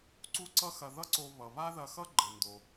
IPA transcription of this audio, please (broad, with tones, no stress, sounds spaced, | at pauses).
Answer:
ǀ u˥ ǀ ʌ˥ x ɐ˧ ð ʌ˥ ǀ o˧ β ʌ˩ β a˥ ð ɐ˧ x ʌ˥ ɡ͡ǃ ɘ˩ n d o˩